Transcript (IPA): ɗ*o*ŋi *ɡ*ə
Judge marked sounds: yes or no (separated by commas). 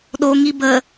yes, no